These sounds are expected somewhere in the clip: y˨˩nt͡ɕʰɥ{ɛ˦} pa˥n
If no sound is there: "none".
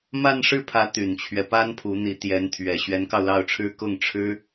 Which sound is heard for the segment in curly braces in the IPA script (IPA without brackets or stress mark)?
ɛ˦